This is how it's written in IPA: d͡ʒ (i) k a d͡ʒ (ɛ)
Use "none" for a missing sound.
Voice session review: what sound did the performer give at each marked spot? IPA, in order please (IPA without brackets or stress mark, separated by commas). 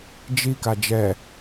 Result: i, ɛ